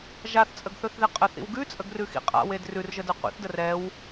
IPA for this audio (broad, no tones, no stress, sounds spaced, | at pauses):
ʒ a θ t͡sʼ ə ɡ θ ɵ θ ð e qʼ ə θ ḭ w ɡ ʉ t͡sʼ ə ɡ r ʉ x ḭ qʼ a̰ w e d r ʉ r ʒ ə d ɛ qʷ ḭ θ d ə r ɛ w